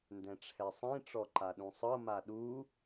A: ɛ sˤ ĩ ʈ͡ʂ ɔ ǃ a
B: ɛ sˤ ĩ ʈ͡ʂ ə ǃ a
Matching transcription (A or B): A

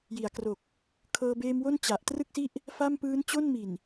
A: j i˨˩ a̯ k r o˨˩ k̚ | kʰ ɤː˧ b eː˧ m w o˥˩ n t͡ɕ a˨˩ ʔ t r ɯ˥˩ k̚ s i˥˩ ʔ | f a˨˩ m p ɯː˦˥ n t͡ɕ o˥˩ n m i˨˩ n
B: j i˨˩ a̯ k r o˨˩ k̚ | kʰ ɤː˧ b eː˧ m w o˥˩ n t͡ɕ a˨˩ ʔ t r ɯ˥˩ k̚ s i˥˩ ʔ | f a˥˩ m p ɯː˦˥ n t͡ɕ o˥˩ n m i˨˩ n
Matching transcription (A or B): B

